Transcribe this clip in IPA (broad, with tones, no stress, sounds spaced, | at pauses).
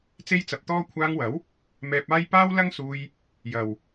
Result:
t͡s e˥ j t͡s ɐ˧ p̚ t̪ ɔː˥ kʷʰ aː˧ ŋ w ɐ˨˥ w | m ɛː˧ p̚ aː˥ j p aː˥ w l ɐ˥ ŋ s uː˧ j | j ɐ˨ w